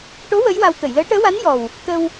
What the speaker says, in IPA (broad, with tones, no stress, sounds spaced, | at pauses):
ʈ o˧˥ w ə˧˥ j w a˧ w t̪ ə˨˩˨ j l əː˧˥ ʈ əː˧˥ w a˧˥ n j ɔ˨˩ w | t̪ ə˧ w